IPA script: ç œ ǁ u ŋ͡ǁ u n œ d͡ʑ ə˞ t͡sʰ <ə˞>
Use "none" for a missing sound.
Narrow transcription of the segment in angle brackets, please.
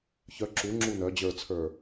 ə˞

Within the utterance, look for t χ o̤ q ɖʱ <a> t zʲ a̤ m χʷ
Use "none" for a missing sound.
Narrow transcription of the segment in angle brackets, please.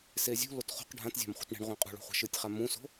ã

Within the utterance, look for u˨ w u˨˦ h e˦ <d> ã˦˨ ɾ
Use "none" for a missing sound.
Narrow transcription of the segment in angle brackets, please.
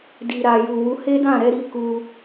d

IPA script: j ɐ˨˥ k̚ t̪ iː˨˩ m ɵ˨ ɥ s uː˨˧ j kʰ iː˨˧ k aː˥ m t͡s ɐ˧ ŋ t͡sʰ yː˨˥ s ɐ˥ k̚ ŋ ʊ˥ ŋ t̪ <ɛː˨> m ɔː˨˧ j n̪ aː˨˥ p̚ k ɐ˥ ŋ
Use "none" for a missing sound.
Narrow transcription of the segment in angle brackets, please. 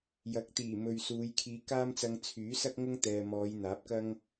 ɛː˨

